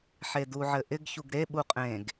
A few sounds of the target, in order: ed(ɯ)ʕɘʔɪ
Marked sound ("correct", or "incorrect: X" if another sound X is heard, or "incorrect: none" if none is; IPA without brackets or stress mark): incorrect: u